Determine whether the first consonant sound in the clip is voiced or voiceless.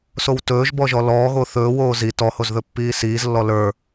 voiceless